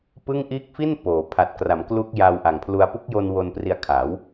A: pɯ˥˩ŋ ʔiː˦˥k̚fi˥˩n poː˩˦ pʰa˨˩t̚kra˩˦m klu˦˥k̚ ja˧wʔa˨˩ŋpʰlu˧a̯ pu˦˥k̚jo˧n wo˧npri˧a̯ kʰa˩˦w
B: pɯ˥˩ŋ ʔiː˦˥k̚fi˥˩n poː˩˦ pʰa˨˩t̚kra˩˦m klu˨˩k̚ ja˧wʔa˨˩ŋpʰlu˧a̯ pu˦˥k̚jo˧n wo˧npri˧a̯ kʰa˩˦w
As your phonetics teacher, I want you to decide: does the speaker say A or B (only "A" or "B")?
A